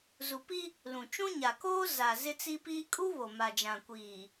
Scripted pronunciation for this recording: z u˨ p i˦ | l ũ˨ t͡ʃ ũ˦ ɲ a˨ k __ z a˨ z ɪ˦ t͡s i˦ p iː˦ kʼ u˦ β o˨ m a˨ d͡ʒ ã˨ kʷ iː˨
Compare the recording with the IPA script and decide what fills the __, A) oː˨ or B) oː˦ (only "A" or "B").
B